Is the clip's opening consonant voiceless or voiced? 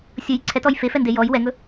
voiceless